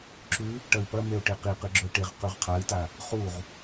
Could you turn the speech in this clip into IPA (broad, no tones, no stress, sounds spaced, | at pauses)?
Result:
ǁ ʉ | ʈ ɐ i̯ p ɐ m e u̯ ʈ e q i q ɨ ɡ͡ǁ ɵ i̯ ʈ e ʁ q ʉ ʁ qʰ a i̯ t a | χ u ʁ